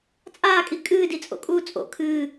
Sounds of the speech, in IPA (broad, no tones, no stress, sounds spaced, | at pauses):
t͡sʼ aː kʼ i kʼ ɨː d i t͡sʼ o̰ kʼ uː t͡sʼ o̰ kʰ ɨː